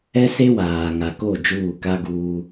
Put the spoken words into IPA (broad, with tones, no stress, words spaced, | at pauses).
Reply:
ɛ˦se˦waː˨ ŋa˨ko˦˨ d͡ʒuː˦˨ka˦ɡuː˦